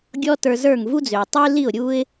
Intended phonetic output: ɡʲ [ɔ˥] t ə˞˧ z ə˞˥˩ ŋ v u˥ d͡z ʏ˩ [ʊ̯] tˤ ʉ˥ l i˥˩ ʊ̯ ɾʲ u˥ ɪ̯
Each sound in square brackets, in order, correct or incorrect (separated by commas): correct, correct